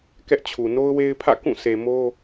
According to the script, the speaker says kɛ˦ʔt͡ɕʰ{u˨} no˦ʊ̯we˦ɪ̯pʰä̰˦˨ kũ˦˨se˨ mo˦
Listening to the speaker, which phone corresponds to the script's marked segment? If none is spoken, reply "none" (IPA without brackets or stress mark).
u˨